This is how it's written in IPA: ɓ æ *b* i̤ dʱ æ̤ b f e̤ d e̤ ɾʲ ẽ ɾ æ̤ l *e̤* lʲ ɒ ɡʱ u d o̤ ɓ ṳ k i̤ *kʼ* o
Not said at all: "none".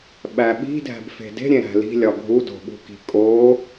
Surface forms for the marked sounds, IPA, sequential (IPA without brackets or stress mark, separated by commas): ɓ, i̤, kʼ